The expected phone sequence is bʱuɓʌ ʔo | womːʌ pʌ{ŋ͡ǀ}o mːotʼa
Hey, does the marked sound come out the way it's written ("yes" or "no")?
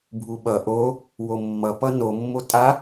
no